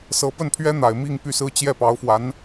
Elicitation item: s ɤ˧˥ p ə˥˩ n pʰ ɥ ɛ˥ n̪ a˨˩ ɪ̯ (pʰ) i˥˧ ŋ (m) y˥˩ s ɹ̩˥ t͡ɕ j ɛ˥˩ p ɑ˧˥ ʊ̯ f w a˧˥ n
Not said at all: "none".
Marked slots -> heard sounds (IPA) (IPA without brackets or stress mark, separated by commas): m, p